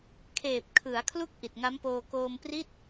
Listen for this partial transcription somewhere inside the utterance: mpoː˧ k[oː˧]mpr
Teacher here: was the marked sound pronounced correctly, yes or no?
yes